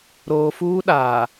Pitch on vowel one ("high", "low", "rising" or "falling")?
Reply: low